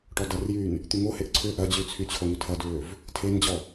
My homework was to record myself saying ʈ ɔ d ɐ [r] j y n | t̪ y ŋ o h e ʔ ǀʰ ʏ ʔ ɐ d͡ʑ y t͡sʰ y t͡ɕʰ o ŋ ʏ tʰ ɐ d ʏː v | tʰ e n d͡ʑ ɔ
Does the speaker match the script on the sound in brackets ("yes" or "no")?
yes